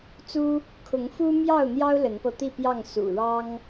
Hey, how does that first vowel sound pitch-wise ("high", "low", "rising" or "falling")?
high